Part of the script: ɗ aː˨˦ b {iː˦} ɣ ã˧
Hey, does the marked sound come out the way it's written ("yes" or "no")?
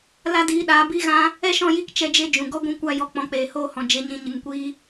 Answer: yes